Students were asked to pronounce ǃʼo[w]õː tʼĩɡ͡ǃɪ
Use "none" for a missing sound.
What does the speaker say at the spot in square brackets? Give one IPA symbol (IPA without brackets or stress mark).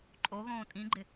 ɣ